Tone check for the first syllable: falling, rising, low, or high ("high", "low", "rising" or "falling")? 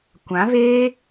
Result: rising